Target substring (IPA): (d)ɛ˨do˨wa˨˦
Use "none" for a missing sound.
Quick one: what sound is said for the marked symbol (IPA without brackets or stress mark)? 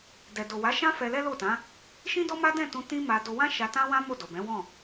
d